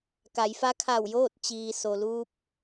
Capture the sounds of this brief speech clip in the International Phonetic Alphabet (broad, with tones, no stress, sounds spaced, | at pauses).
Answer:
k a˩˧ j f a˧˥ kʰ a˧˩ w j oː˥˨ t̚ t͡ɕ iː˩ s o˩ l uː˧ p̚